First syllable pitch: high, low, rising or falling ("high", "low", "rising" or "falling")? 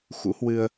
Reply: rising